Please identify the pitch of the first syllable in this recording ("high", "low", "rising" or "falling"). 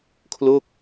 falling